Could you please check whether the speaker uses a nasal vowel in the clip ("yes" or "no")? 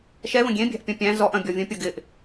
yes